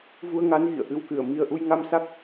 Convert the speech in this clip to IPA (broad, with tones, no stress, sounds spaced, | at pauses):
v u˧ ə̯ ŋ a˨˦ n ɣ ḭ˧˨ ə̯ ʔ ɨ˧ w k ɨ˧˩ ə̯ m i˨˩ ə̯ ʔ u˧ j ŋ a˧ m s a˦˥ k̚